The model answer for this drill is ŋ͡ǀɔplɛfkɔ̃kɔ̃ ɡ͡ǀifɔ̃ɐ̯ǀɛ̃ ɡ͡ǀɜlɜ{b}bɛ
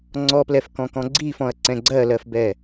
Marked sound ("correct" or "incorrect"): incorrect